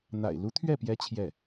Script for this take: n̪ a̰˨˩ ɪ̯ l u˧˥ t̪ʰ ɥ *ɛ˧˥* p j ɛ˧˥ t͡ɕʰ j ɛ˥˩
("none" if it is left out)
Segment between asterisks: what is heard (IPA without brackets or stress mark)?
ɛ˥˩